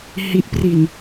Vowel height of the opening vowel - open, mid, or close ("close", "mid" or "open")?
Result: close